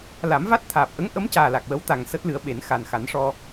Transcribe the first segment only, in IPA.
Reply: l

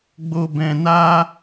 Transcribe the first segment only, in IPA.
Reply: ɡ͡b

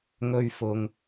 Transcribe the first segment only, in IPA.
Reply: ŋ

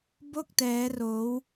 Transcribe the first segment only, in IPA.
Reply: b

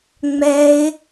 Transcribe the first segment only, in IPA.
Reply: ŋ͡m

